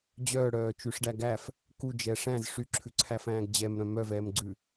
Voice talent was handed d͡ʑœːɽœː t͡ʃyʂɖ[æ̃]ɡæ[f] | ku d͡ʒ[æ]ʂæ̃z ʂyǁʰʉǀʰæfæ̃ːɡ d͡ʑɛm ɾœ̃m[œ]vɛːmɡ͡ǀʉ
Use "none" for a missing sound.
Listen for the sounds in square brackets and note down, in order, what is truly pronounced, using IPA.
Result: æ, f, ɛ, œ

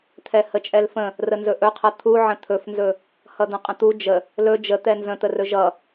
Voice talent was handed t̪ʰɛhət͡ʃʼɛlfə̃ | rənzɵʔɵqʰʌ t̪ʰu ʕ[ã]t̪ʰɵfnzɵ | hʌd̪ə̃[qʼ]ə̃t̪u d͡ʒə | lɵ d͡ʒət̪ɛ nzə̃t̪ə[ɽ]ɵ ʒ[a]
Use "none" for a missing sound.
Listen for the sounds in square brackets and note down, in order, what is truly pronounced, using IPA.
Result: ə̃, qʼ, r, ʌ

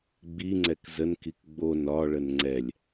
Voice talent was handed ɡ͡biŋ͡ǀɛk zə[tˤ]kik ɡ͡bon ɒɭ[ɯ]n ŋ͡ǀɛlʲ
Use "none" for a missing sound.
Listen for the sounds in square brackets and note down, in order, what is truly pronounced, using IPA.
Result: n, ə

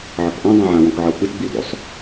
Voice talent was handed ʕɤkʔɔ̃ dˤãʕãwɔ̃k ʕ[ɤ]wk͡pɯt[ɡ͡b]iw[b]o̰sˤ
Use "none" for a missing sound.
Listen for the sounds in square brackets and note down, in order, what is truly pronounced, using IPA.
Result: ɤ, ɡ͡b, d

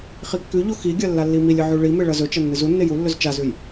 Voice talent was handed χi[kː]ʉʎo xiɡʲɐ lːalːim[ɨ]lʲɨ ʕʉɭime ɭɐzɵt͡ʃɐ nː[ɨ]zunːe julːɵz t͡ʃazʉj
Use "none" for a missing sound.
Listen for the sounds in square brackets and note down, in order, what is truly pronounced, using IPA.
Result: kː, i, ɨ

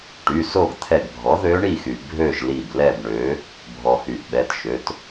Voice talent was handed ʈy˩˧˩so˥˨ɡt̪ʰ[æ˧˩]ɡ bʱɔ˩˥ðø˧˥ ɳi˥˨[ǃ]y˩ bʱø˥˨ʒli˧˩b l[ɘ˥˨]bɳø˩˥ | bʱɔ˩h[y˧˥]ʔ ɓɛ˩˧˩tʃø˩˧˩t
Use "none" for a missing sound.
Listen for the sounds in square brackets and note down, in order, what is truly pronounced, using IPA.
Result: ɛ˧˩, x, ɛ˥˨, y˩

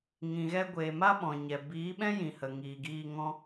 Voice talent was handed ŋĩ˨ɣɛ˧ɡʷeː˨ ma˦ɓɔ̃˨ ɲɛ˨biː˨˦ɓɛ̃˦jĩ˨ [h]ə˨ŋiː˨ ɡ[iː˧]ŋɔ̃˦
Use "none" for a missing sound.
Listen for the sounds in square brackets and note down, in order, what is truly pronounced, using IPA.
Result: h, iː˧

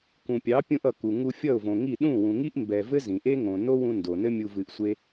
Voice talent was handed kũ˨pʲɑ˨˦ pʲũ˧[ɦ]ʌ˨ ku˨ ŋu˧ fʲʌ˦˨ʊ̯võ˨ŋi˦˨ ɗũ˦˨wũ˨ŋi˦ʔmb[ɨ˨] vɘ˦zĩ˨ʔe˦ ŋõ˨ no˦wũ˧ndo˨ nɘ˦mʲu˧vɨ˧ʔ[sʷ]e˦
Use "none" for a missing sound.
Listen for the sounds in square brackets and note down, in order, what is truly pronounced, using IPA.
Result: ʔ, ɛ˨, sʷ

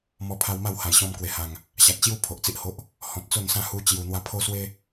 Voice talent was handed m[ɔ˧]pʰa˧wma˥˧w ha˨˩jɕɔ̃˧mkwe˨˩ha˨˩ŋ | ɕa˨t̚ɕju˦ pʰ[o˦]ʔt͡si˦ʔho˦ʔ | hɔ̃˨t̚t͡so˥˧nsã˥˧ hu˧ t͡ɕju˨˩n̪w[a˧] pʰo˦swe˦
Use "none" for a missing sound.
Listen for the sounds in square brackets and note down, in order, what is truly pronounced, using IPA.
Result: ɔ˧, o˨, a˧

